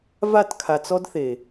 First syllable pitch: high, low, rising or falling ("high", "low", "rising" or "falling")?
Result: falling